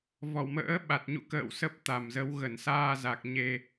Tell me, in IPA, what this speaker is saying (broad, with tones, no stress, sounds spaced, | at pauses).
v ɔ˧˩ w m ə̰ː˧˥ ɓ a˨˩ t̚ ɲ ṵ˧˨ k ə̰ː˧˨ w s ə˦˥ p̚ t̪ a˨˩ m z ə˨˦ w ɣ ə˧˩ n s aː˧ z a˨˩ k̚ ɲ e˧